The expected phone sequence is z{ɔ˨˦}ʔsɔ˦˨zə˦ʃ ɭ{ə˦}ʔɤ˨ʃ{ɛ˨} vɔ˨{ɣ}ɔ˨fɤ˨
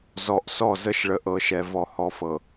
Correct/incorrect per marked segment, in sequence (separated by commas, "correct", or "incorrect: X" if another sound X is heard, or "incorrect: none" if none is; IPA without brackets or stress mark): incorrect: ɔ˨, incorrect: ə˨, correct, incorrect: h